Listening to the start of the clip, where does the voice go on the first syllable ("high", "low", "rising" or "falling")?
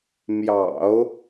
low